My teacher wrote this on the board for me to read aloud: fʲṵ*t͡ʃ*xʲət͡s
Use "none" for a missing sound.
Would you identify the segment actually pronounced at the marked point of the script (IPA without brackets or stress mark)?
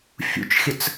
t͡ʃ